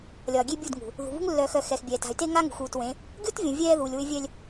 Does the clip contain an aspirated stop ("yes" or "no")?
no